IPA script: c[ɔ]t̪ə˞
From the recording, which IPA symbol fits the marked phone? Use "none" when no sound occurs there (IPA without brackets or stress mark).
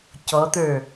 ɔ